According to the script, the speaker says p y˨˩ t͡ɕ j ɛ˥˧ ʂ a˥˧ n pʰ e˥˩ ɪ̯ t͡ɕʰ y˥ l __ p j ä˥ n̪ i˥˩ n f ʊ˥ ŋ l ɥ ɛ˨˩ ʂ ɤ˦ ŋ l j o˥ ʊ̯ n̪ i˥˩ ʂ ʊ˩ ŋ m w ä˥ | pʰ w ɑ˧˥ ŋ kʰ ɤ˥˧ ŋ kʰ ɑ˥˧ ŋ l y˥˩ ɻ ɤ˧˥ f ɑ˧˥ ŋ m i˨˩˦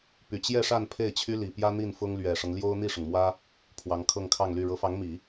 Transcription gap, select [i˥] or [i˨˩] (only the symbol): i˨˩